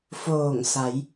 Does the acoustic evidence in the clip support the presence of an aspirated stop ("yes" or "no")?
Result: no